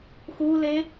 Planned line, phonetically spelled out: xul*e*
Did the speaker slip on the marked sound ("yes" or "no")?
no